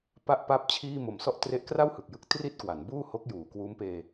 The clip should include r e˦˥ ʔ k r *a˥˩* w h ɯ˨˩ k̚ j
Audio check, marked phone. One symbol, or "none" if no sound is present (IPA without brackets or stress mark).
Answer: a˥˩